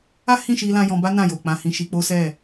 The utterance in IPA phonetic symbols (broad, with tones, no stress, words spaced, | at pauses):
a˦hĩ˦˨ʃi˧lã˧ jɔ̃˧ba˦ nã˦˨jo˨ k͡pã˧ hĩ˧ ʃi˧k͡po˦ sɛ˦˨